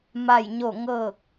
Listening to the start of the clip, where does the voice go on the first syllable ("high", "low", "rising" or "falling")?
falling